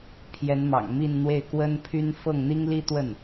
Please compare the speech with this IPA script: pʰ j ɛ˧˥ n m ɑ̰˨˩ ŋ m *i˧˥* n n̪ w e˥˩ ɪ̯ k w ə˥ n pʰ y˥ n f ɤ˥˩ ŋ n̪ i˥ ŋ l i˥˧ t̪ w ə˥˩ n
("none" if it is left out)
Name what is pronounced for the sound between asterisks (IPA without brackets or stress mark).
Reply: i˥˧